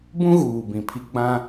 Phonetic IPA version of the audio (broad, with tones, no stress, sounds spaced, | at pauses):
b ũ˦ ɣ uː˨ b ĩ˨ pʰ i˦ ɡ͡b ã˦